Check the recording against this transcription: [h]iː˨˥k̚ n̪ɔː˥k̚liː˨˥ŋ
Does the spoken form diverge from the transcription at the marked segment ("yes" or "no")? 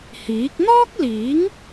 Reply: no